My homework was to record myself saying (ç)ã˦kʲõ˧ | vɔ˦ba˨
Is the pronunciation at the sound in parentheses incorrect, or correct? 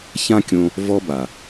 correct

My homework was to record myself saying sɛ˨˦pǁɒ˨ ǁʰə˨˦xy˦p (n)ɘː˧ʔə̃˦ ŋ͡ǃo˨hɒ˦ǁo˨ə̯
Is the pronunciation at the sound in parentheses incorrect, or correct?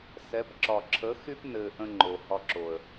correct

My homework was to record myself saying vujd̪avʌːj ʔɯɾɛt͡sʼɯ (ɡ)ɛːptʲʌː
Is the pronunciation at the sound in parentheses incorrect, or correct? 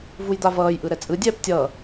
incorrect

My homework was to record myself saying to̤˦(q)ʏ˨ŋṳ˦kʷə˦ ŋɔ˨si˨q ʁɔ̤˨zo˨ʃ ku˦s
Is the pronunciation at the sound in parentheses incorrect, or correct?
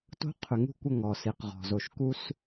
incorrect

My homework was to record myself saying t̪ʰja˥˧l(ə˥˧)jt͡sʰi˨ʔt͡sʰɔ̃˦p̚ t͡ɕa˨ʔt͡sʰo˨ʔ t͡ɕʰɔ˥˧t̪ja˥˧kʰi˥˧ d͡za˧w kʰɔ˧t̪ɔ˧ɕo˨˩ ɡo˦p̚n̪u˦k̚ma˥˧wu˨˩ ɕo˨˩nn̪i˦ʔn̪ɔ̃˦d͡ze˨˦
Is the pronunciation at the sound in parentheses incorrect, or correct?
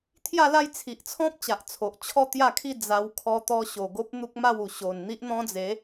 incorrect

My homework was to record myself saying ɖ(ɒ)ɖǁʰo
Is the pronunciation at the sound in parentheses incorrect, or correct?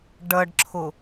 incorrect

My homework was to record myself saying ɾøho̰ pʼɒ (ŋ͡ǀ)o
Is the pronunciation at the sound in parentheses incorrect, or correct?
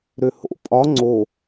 correct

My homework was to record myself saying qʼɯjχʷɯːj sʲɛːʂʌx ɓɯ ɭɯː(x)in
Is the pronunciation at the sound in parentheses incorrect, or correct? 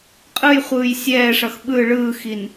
correct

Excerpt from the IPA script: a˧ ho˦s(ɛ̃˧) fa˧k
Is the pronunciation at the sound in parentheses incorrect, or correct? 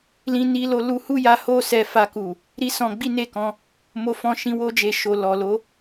incorrect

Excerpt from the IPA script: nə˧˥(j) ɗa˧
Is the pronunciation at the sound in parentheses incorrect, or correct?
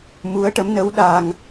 incorrect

